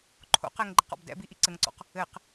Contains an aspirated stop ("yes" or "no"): yes